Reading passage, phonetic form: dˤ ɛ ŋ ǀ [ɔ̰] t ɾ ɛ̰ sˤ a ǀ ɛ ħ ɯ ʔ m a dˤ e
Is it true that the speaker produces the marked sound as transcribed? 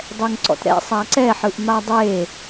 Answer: yes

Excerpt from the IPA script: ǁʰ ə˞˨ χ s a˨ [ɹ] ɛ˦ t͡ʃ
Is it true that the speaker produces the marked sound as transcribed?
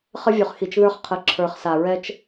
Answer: yes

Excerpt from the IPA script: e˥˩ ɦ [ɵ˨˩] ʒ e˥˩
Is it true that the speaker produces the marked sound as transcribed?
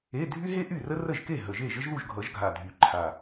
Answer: no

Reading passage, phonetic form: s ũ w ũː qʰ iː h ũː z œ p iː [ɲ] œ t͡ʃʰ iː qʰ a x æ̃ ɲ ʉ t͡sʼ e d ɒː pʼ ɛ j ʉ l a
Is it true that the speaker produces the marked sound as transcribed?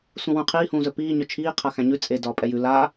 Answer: yes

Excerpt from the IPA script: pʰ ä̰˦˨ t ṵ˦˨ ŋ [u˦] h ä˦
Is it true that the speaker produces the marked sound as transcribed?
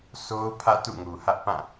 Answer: no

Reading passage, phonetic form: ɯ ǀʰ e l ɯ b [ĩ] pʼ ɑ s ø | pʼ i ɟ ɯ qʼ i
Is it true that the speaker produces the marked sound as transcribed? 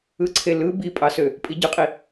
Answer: no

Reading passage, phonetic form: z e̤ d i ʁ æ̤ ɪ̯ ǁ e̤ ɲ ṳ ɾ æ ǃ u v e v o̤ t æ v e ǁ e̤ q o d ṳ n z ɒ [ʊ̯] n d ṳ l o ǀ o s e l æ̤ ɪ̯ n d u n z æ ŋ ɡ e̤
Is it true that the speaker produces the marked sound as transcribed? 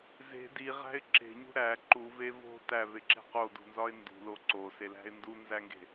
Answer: no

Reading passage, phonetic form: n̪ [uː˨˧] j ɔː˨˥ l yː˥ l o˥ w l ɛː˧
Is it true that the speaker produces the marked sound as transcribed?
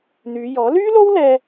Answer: no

